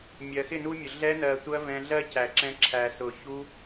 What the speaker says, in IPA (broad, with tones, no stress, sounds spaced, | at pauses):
mʲ ɜ˨ x ɪ˦˨ n u˦ mʲ ʊ˨ ɮ ɛ˧ n ɜ˨ tʷ ɜ˧ v ɛ̃˧ ɮ ɜ˦ cʰ æ˨ ǁ ɛ̃˧ ǁʰ æ˨ s ʊ˨ ç u˧